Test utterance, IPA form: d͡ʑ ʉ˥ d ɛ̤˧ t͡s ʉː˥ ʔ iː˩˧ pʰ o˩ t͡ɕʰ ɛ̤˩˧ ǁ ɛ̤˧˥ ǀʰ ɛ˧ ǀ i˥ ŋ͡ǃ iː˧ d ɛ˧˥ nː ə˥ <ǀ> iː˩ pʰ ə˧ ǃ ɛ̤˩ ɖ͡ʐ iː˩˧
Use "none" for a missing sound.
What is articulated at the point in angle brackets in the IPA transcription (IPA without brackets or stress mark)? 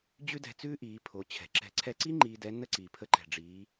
ǀ